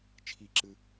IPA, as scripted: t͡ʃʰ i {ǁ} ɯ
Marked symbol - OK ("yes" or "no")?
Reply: yes